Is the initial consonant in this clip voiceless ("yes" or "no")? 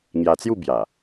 no